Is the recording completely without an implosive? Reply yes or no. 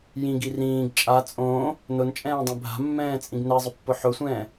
yes